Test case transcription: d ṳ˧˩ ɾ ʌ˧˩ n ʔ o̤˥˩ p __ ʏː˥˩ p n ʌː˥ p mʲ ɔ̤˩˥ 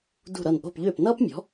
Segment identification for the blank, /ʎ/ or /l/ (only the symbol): ʎ